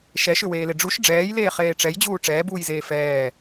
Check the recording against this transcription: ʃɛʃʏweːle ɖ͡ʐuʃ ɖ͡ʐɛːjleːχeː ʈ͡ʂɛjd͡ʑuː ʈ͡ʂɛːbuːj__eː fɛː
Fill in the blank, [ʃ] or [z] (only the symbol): z